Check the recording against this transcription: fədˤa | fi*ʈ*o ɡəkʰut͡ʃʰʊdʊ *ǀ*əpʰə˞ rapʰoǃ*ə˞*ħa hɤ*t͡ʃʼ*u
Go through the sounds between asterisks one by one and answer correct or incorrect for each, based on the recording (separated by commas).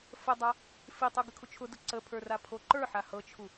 incorrect, correct, correct, incorrect